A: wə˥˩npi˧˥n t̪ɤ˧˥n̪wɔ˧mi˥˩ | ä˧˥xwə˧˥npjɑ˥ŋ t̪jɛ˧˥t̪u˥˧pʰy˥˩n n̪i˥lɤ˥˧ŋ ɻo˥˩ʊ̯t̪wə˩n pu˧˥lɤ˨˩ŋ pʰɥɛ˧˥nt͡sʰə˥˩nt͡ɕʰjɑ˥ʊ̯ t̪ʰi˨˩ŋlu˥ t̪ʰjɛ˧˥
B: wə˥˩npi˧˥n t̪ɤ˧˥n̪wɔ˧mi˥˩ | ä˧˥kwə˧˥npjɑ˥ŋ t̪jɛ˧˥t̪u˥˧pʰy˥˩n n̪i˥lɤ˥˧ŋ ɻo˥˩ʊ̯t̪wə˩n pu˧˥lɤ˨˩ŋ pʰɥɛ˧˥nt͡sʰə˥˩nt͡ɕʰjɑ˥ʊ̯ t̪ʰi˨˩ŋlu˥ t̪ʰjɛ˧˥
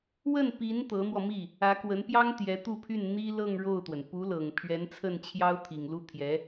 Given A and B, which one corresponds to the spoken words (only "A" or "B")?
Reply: B